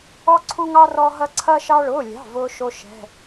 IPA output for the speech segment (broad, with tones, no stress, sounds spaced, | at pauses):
ɔ˧ ǀʰ u˧ ŋ ɑ˧ r ɔ˧ ɦ ɐ˧ ǀʰ ɐ˧ ʃ ɑ˧ ɭ ʊː˩˧˩ lʲ ɑ̤˩˧˩ v ʊː˧ ʃ o˧ ʃ ɛ̤˩˧˩